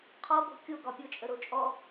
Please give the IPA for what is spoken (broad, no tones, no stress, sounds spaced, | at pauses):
qʰ ɔ b o̤ kʲ o ɡ ɒ pʲ o t͡ʃʼ ə ɾ o t͡ʃʼ ɔ